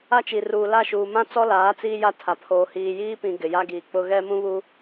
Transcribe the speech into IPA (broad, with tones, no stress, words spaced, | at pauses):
a˦t͡ʃi˨ ruː˨la˦˨ʃuː˨mã˦ t͡sɔ˦laː˨˦ t͡siː˦ja˦ tʰa˨pʰoː˨ hiː˨jiː˦pĩ˨ ɡɪ˨ja˦ɡiː˨k͡pʊ˦ ɣɛ˦mũ˦βu˦